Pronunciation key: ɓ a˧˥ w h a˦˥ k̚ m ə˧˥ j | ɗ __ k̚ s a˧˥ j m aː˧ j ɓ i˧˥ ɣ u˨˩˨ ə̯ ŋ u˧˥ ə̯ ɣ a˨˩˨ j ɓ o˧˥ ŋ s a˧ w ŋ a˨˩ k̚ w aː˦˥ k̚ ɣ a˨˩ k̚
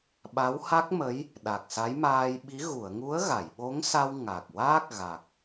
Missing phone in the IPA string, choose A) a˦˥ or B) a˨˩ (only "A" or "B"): B